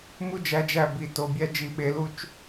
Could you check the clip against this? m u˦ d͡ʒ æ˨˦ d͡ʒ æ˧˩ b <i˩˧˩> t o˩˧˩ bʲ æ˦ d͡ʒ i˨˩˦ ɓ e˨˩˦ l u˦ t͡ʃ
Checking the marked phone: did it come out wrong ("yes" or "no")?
yes